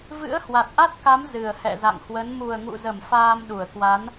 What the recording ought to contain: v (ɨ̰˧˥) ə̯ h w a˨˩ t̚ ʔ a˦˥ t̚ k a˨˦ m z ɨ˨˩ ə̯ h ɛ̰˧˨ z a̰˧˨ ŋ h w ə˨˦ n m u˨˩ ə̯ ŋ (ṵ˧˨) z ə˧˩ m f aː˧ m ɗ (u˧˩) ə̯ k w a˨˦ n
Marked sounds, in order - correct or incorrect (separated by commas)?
correct, correct, correct